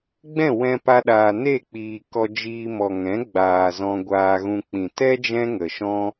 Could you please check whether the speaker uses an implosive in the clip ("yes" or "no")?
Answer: yes